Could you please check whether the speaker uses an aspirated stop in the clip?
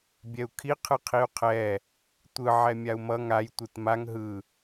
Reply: yes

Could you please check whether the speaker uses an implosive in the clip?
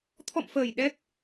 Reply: yes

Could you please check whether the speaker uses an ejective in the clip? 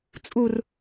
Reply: yes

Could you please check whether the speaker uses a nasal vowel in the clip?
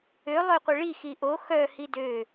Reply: no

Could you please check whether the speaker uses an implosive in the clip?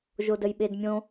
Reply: yes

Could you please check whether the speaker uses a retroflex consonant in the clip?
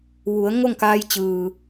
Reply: no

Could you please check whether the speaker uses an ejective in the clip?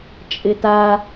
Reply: yes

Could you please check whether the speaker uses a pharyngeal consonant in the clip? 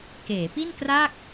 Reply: no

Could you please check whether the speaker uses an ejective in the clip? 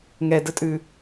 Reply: yes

